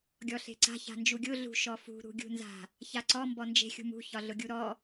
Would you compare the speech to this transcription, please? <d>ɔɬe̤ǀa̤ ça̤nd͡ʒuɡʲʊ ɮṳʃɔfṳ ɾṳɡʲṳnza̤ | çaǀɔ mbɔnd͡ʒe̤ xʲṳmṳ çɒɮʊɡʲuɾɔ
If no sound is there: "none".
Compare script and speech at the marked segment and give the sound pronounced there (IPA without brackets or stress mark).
ɡʲ